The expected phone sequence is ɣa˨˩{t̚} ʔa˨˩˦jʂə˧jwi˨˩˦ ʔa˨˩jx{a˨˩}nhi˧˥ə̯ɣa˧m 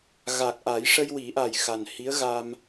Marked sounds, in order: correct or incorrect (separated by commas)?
incorrect, correct